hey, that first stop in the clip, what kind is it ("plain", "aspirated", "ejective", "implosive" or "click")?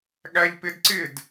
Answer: implosive